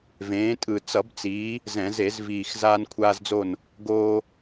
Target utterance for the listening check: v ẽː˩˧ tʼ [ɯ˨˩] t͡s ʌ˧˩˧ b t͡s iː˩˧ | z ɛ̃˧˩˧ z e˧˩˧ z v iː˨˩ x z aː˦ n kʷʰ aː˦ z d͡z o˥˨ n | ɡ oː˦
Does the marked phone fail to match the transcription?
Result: no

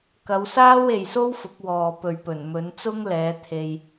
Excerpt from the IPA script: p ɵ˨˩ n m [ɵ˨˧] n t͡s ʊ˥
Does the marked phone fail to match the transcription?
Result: no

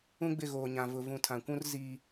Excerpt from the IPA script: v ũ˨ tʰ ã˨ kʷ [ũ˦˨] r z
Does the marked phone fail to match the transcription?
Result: yes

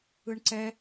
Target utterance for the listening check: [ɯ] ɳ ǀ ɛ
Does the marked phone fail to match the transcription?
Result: no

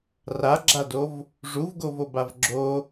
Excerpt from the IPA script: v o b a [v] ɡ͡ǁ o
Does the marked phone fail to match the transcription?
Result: no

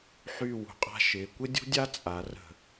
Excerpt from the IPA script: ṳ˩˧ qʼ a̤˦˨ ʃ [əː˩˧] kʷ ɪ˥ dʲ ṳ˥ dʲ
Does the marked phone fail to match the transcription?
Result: yes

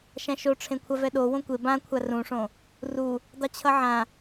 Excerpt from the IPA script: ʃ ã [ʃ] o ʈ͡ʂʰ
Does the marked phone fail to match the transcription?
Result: no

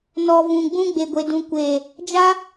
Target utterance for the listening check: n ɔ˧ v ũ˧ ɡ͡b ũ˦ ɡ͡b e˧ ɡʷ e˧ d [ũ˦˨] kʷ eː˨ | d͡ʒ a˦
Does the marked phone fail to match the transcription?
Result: yes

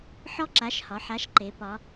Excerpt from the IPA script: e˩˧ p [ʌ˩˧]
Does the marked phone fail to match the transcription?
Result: yes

